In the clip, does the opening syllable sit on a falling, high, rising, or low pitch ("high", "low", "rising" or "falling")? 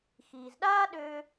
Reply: low